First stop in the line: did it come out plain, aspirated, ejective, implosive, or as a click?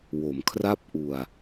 aspirated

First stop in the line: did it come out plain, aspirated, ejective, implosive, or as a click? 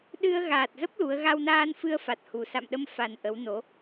implosive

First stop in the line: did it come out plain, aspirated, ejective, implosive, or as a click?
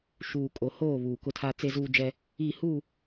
ejective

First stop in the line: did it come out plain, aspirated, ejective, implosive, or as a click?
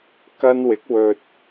plain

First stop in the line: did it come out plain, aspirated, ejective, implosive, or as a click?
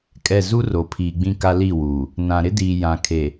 ejective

